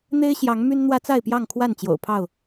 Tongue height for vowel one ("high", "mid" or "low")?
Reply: mid